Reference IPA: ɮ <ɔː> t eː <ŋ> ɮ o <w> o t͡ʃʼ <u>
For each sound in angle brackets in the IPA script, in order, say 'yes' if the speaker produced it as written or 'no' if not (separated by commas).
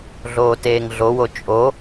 no, yes, yes, no